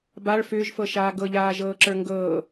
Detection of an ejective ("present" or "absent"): absent